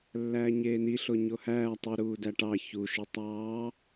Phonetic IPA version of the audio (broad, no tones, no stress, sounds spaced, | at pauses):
lː æː ɲ eː n i ɬ o ɲ o h æː tˤ ɯ ɾ uː d æ ʈ ɑ ç u ʃ ɯ tˤ ɑː